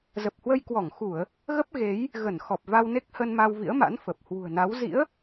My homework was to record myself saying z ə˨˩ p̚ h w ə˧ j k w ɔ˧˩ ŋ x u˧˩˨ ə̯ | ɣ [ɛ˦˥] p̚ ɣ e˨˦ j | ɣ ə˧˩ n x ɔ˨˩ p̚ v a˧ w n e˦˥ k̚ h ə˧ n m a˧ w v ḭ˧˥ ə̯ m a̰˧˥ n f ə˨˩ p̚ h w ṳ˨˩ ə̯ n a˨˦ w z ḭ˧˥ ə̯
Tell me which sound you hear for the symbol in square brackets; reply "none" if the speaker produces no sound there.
ə˦˥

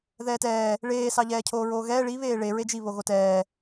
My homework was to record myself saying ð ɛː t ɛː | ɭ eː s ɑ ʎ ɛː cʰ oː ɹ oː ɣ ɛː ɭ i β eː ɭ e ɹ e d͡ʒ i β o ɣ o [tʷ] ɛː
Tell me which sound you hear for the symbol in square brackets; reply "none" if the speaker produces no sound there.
t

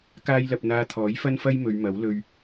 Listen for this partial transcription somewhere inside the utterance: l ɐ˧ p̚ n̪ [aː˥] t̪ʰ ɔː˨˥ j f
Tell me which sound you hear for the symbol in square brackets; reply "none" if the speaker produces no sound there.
aː˧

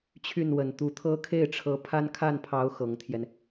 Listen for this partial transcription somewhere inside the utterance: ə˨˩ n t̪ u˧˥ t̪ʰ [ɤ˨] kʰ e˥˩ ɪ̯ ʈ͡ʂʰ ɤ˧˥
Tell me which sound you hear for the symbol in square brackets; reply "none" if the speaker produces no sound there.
ɤ˥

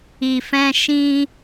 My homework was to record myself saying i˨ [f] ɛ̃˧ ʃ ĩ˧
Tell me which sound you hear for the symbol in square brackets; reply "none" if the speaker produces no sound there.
f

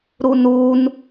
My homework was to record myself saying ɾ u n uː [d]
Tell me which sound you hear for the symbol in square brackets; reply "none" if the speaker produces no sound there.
n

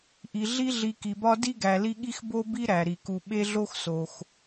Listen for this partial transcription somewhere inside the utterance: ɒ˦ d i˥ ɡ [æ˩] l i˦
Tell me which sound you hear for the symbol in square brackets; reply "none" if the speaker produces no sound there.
æ˨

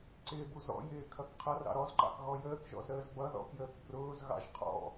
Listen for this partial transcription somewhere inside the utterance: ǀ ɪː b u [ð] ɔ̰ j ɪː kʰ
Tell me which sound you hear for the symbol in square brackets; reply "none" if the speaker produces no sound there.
z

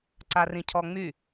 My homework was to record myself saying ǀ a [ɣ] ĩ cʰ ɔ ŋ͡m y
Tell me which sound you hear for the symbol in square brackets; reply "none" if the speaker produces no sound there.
r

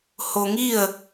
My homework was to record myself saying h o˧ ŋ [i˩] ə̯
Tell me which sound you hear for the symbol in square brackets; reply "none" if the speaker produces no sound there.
i˥˨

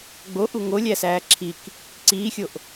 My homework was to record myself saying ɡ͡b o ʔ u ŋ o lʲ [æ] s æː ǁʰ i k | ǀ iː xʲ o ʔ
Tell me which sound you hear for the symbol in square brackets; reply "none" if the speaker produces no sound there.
æ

